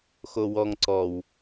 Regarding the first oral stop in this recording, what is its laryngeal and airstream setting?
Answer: click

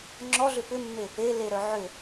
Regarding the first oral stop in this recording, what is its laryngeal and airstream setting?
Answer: click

